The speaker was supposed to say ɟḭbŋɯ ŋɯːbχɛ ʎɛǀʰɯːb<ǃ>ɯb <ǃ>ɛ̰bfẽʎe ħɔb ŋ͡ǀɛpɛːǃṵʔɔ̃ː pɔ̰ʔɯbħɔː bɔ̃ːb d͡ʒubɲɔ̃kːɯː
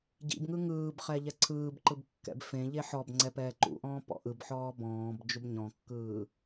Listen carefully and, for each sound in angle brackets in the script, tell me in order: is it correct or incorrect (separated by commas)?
correct, incorrect